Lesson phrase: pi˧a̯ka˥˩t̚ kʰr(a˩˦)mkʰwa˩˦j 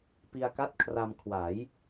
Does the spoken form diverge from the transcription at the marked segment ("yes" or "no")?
yes